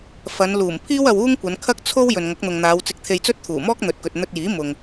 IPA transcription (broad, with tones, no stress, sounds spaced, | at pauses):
f ɐ˨˧ n l uː˨˩ m pʰ iː˥ w ɐ˧ w uː˥ ŋ kʷ ɐ˨˧ n kʰ ɐ˥ k̚ t͡sʰ o˥ w j ɵ˨ n ŋ ɐ˨˥ k̚ n̪ ʊ˨ ŋ n̪ aː˨˧ w t͡s ɪ˧ k̚ t̪ʰ e˧ j t͡s ɵ˥ t̚ t̪ʰ uː˨˩ m ɔː˥ k̚ n̪ ɵ˨ t̚ k ɵ˨ t̚ n̪ ɵ˧ t̚ j iː˨˥ m ʊ˨ ŋ